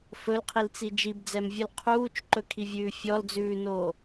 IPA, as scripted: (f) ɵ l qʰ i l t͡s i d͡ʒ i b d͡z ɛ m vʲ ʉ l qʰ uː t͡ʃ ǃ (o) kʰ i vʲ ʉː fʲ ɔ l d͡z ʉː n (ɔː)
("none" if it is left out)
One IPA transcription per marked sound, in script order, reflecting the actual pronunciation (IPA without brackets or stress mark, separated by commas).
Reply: f, ɵ, oː